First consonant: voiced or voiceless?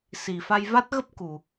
voiceless